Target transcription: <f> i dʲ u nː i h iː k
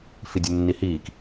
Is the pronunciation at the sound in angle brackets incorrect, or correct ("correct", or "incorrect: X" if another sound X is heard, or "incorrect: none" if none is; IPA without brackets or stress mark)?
correct